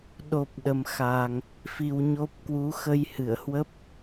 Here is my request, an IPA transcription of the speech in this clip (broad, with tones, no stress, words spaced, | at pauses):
ɗo˨˩p̚ ɗə˨˩mxa˨˩ŋ | fi˨˩wɲo˦˥p̚ kwu˨˦ xə˧jhɨ˧˩ə̯hwə˦˥p̚